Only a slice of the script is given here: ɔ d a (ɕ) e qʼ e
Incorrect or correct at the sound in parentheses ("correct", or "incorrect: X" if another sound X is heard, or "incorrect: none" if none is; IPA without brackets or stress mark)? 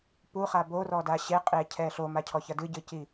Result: correct